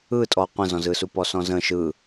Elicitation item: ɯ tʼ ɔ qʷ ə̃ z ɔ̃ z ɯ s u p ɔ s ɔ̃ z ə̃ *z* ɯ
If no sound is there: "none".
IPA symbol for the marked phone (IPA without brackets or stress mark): ʃ